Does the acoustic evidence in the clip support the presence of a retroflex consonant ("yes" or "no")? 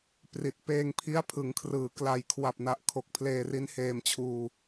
no